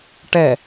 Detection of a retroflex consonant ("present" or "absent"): present